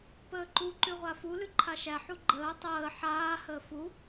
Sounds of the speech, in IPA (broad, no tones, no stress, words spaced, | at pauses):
pəːǃu ǃʉʁʷafu lʉǃʰaʃæ ħuɡ͡ǃəː tˤəː ħaː həːfu